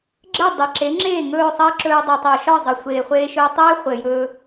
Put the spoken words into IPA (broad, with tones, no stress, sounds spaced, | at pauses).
ɡ͡ǁ ə˥˩ dˤ ɘ˩ ǁ e˩˥ ŋ͡ǁ eː˥˩ ŋ ɵː˥˩ sˤ ɘː˥ ǁ ɵː˧ dˤ o˩ tˤ o˩ ʃ ɒ˥˩ zˤ ɘ˩ sʷ eː˩ χʷ eː˧ ʃ ɵː˧ tˤ eː˥ χʷ ɘ˩ j ɵː˧